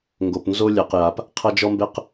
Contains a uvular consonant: yes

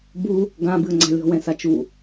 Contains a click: yes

